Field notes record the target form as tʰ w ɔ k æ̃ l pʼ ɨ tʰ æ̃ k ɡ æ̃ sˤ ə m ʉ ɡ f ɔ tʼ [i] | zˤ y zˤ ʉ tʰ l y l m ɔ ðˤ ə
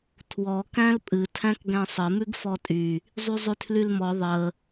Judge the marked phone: incorrect: y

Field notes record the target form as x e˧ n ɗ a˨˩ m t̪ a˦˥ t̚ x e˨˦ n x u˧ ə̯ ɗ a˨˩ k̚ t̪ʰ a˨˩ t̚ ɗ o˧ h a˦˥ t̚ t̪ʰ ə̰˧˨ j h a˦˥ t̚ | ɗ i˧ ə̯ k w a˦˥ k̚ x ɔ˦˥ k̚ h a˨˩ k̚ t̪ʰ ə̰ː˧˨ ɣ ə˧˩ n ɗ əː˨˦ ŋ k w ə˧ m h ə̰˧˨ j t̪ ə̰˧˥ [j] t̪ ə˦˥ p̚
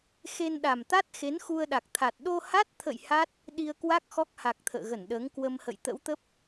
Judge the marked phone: incorrect: w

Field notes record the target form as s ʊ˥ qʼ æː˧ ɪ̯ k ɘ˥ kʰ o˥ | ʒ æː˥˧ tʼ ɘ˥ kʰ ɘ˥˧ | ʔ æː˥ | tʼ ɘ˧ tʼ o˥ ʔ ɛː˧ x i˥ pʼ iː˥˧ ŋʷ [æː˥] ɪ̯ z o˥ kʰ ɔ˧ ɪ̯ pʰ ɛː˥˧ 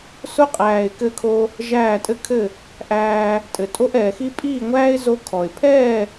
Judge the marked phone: correct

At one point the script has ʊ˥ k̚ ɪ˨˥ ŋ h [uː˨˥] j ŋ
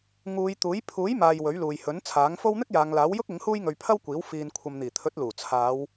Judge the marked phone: incorrect: uː˥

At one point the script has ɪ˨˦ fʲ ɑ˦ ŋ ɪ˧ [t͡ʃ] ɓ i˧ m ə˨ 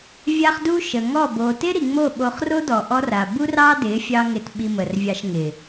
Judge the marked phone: incorrect: t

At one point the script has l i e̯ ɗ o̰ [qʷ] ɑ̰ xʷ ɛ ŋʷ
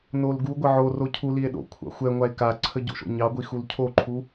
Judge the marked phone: incorrect: kʷʰ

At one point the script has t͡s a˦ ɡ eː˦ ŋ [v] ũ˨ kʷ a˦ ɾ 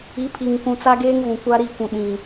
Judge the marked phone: correct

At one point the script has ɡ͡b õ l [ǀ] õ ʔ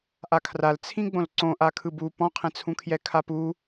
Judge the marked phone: correct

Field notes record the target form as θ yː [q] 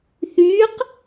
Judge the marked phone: correct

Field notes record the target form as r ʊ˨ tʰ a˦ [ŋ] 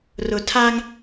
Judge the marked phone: correct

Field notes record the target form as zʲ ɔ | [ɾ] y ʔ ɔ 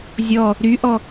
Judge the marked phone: correct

